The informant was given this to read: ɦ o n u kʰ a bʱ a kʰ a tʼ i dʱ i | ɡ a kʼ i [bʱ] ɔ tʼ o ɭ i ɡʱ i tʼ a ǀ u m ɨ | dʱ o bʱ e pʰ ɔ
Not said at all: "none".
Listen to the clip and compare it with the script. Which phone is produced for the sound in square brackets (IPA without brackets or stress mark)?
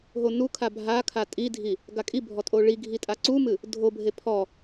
bʱ